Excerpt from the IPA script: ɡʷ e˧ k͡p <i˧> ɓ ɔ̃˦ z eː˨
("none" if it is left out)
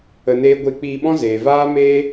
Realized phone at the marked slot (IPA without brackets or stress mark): iː˧